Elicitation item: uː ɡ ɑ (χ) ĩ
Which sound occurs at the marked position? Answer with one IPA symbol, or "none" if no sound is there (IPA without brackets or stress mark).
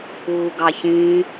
ç